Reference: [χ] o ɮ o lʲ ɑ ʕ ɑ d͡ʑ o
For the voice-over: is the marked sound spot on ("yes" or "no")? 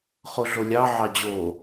yes